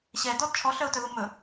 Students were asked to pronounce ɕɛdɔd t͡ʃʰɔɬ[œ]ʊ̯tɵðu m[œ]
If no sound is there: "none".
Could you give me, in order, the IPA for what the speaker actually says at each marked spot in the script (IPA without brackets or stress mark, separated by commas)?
œ, ɵ